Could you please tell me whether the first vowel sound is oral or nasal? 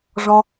nasal